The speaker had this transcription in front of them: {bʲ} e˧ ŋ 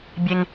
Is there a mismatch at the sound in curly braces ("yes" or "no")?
no